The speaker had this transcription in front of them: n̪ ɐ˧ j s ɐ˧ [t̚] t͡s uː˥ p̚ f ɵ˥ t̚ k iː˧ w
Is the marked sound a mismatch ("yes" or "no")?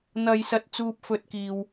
no